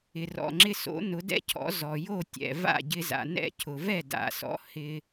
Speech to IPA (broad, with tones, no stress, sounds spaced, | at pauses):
ɪ˩ r ɔ̰˩ ŋ͡ǁ ɪ˧ s o̰˩˥ n ʊ˩˥ d ɛ̰˥ cʰ ɔ̰˩˥ z ɔ˩ j o˥˩ tʲ ɛ̰˩ v a̰˥˩ ɟ ɪ˧ z a̰˩ n ɛ̰˥˩ cʰ ʊ˩ v ɛ˥˩ d a̰˩ s ɔ̰˩˥ h ɪ˧